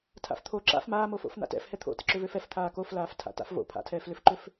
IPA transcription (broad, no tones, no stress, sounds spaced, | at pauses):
tʰ a̰ f t̪ʰ o ǁ a̰ f m aː m o f o̰ f n̪ a̰ t ɛ̰ f h ɛ t̪ʰ o̰ t ɨ ǁ ʏ v ø f ɛ f t̪ʰ aː k o f l aː f tʰ a̰ t a̰ f v o̰ pʰ a̰ tʰ ɛː f l ʏ f ǃ ʏ f